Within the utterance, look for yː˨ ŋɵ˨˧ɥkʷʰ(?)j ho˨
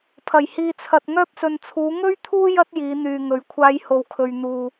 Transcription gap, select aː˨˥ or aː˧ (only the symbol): aː˧